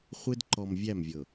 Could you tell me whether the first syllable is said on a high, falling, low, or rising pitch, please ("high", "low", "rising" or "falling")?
high